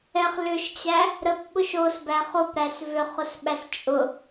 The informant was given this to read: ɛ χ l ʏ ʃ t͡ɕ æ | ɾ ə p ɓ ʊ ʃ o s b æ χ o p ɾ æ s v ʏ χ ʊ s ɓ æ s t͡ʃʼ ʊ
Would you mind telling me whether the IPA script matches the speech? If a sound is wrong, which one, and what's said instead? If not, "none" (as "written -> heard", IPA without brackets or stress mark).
none